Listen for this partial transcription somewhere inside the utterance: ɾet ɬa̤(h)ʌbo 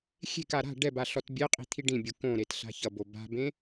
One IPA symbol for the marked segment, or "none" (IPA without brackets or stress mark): ç